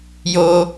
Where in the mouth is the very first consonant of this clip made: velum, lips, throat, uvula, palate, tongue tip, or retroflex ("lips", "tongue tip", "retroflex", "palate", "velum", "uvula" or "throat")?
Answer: palate